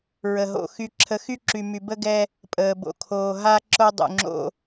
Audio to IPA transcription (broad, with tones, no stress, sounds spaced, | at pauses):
ɹ ə˨ ɦ o̰˨ x y˦ ǁʰ ə˦ x y˦ ǁ y˨ m y˨ b ə˦ ɡ ɛ˦ | pʼ əː˨ b o̰˨ kʰ oː˨ ɦ a˦ ǁ o˦ dˤ ṵ˨ ŋ͡ǁ o̰˦